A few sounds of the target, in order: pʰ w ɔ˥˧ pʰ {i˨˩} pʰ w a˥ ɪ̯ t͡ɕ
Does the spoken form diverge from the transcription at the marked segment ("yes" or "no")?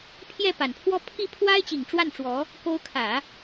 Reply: yes